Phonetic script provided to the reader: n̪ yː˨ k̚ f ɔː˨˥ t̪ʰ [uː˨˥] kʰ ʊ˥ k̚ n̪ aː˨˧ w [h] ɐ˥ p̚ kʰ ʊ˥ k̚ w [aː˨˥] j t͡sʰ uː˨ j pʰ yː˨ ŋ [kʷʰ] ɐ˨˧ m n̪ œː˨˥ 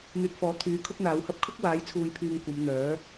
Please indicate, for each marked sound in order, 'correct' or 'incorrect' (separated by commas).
incorrect, correct, correct, incorrect